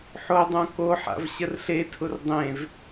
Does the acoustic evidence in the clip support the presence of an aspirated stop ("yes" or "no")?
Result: yes